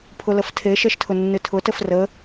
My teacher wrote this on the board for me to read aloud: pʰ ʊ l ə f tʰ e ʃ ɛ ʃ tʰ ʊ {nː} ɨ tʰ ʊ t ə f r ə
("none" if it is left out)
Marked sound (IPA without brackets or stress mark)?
nː